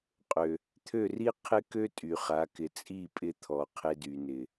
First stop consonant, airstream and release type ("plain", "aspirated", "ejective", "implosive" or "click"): ejective